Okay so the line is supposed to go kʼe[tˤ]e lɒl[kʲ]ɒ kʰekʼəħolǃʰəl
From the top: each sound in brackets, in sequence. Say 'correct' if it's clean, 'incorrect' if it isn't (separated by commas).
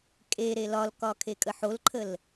incorrect, incorrect